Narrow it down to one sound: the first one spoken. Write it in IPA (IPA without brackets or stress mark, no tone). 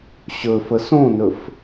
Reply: ɕ